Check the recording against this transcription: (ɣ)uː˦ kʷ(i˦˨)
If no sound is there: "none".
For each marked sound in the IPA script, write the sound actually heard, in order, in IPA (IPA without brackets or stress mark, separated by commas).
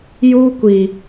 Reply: j, i˨